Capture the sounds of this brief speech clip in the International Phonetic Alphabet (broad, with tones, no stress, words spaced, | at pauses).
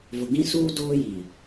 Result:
vʊ˨ɡĩ˦suː˦ doː˦ji˨